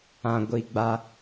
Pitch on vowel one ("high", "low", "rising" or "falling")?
low